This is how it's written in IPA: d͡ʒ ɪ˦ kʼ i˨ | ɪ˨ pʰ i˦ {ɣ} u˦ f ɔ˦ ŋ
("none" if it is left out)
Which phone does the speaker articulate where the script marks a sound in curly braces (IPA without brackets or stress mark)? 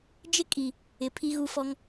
ɣ